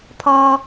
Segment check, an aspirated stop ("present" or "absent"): present